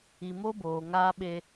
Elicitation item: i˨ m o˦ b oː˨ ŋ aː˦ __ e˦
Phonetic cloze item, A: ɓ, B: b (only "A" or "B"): A